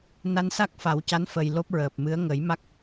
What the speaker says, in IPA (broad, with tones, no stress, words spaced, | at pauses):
na˧nsa˦˥k̚fa˨˩˦wca˧˥n fə˨˩j lo˦˥p̚ɹəː˨˩p̚mɨ˧˥ə̯ ŋə˨˩˦jma˦˥k̚